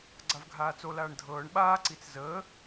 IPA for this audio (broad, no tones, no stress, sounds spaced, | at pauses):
ɡ͡ǀ a v ɡʱ aː t͡s o l aː ɳ dʱ ɤː ɳ ɓ aː ǀ i t͡s z əː